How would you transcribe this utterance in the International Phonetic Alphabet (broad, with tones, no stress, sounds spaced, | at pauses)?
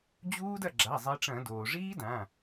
d͡ʑ uː˦˥ d ɐ˥˩ ɡ͡ǁ a˩˧˩ zˤ i˨˦ ʈ͡ʂ ɐ̃˧˩˧ d oː˩ ʐ iː˦˥ d ã˩˧˩